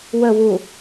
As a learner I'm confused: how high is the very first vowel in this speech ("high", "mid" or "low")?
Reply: mid